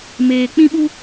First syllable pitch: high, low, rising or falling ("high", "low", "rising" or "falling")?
low